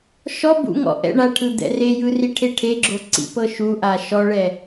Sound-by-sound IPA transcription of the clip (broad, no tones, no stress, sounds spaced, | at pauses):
ʃ ɔ b ṵ ŋ ɔ̰ ʔ ɛ̰ ɳ a ʈʰ ɯ d̪ ɛ̰ r e j ɯ r i ʈʰ e ʈʰ e ɡ͡ǁ o ǀ ḭ p ɤ ʃ u ʔ a ʃ ɔ ɭ ɛ